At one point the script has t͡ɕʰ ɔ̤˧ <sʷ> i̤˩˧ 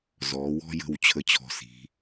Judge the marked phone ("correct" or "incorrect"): incorrect